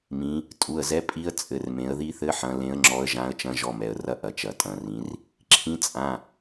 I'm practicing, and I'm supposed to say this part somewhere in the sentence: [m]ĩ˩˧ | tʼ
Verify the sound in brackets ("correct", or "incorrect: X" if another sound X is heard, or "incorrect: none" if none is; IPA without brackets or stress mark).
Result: correct